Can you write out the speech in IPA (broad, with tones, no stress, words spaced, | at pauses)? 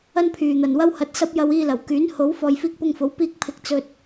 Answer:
ɐ˥npʰyː˨n̪ɐ˨nwɐ˥w hɐ˧t̚sɐ˥p̚ jɐ˧wiː˧lɐ˨˩w kyː˨˥nho˨˥w fɔː˨jfiː˧k̚pʊ˧ŋfo˨˥w piː˧k̚pʰɪ˨˥k̚ t͡sɵ˧t̚